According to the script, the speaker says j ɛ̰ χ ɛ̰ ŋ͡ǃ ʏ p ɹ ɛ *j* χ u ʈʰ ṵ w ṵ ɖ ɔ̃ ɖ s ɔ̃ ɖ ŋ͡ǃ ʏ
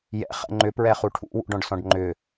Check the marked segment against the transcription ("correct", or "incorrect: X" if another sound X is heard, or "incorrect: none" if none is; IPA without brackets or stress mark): incorrect: none